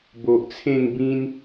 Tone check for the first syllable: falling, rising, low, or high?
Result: low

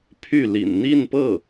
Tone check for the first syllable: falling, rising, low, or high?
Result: falling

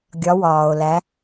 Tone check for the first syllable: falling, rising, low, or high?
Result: rising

